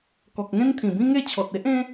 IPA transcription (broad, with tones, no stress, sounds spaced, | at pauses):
k ɔ˨ k̚ ŋ ẽ˦ n t̪ʰ ĩ˨˩ b ĩ˦ ŋ e˥˧ t͡ɕʰ ɔ˨ t̚ e˦ ʔ ẽ˦